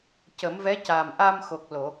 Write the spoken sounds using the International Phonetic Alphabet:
c ə˨˩˦ m v ɛ˧˥ c aː˨˩ m ʔ a˧ m x o˨˩ k̚ l o˨˩˨

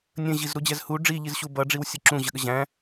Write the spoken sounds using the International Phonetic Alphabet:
nʲ ə̃ ʑ i z ɾ u d͡ʑ ɛ z h u ɖ͡ʐ i ʎ i z ɕ u b ʌ ɖ͡ʐ i w sʲ ʌ ǁ ũ ʑ ə ɠ ə ʑ æ̃

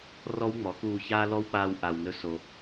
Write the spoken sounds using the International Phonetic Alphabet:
r ɔ˦ w ŋ͡m ɔ˨˦ k uː˧ ç aː˦ l ɔ˦ w k͡p aː˧ w ʔ a˨ w n ɵ˦ s o˧

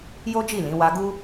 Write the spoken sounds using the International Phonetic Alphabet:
j o˦ d͡ʒ i˦˨ l ĩ˨˦ w a˧ ɡ u˦

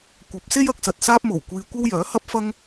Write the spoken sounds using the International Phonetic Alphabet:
kʷ ɐ˨˥ p̚ s e˥ j ɐ˨˥ k̚ s ɐ˨ t̚ s aː˥ p̚ m o˨˩ w kʷ iː˧ kʷ ɐ˥ w j œː˨˥ h ɐ˥ p̚ f ɐ˥ ŋ

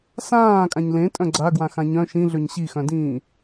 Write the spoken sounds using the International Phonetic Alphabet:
s ãː kʼ ã ɲ l ẽ tʼ œ̃ ɡ͡ǀ a ɡ w ã x ã ɲ œ̃ ʃ ĩ ɮ ø ɲ ɕ i x œ̃ d ĩː

